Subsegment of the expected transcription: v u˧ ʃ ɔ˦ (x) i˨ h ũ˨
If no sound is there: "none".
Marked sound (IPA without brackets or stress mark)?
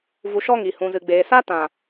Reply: ŋ